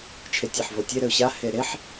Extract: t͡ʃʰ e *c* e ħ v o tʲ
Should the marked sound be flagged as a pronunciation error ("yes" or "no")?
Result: yes